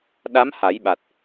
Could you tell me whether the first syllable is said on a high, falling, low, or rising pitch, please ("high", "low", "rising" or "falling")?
rising